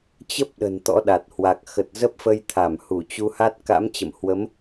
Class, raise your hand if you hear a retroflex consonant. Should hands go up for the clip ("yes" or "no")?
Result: no